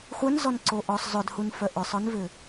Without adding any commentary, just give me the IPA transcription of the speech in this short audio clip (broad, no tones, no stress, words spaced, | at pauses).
χʷœnzɔnǀo ʔɔsˤ zˤʏdhunfœ ʔʏsˤœnvʏ